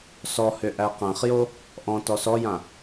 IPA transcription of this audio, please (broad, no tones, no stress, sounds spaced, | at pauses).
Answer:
s ɔ h ʏ ʔ æ q æ̃ χ j o | ʔ ɔ̃ t ɔ s ɔ j ã